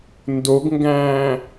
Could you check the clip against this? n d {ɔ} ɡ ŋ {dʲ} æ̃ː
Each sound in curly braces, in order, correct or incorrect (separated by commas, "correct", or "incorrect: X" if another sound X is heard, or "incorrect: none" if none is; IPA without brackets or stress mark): incorrect: o, incorrect: ɡ